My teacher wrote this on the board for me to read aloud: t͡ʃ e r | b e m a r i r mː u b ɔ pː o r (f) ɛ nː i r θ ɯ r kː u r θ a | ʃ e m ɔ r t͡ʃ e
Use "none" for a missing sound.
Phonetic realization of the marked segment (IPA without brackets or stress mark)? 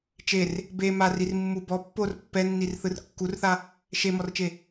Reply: pː